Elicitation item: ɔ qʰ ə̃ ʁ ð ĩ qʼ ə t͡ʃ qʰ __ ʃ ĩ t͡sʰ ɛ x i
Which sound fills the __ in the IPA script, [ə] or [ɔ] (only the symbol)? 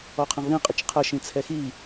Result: ə